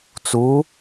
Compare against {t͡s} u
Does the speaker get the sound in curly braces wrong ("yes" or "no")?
no